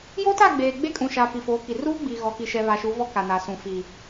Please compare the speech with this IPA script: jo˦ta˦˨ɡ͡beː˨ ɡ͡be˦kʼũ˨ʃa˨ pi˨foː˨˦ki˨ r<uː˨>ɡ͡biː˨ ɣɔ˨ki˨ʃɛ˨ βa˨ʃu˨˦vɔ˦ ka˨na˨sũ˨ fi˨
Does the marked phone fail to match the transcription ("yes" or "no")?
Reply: yes